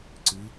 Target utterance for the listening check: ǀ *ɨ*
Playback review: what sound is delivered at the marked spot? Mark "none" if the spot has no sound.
ɨ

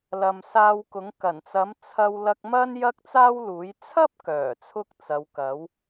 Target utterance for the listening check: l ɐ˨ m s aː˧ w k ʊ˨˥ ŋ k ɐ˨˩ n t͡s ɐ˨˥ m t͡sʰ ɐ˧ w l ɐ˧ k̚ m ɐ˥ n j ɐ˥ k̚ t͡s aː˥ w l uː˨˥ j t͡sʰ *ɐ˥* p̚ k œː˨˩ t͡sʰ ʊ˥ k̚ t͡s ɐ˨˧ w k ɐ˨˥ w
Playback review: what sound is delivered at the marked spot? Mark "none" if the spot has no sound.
ɐ˥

